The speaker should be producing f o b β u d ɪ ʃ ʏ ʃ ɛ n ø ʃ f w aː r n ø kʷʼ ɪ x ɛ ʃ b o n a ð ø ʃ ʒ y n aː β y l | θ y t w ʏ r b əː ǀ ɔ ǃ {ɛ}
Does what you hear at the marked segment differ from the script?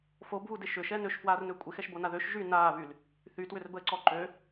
yes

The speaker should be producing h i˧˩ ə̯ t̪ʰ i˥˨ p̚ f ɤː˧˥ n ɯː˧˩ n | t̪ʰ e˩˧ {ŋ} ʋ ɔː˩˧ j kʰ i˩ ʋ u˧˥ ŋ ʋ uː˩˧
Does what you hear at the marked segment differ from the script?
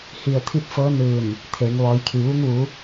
no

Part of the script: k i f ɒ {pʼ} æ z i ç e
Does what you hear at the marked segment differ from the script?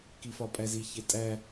no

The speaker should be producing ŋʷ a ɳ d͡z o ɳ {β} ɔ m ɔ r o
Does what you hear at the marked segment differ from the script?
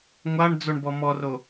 yes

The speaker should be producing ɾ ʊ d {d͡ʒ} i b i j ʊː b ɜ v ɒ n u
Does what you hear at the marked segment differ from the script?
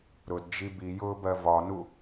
no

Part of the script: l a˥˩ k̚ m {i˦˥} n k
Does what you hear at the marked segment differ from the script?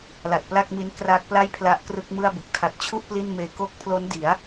no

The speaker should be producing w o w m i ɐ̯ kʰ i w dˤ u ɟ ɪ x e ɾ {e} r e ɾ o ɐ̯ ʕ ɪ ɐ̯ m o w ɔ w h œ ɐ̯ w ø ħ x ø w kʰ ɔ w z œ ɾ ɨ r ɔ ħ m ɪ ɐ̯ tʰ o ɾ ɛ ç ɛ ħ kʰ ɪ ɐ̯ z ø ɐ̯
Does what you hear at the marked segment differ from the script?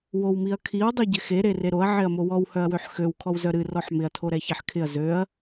no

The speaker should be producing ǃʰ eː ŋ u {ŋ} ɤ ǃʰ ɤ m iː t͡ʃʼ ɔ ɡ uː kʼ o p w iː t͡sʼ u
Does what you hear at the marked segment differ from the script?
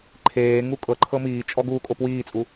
yes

